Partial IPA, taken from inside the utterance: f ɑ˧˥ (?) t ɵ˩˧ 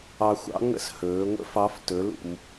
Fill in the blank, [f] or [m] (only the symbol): f